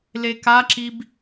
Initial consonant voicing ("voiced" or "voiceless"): voiced